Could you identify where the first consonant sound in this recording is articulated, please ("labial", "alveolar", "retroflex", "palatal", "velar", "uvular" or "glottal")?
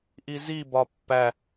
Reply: glottal